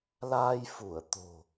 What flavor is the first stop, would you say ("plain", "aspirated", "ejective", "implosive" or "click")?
plain